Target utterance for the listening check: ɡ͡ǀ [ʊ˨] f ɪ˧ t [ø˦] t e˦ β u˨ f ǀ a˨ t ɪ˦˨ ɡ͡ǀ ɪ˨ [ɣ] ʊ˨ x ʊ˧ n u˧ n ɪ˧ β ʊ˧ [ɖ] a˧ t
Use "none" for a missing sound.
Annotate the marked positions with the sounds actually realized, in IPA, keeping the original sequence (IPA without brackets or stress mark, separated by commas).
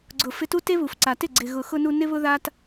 ʊ˨, u˦, ɣ, ð